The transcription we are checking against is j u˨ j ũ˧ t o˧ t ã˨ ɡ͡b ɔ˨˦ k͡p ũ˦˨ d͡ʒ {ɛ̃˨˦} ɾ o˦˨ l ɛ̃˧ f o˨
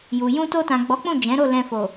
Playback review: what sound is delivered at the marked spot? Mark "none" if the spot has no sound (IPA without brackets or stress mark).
ɛ̃˨˦